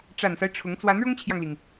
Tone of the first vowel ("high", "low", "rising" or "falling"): low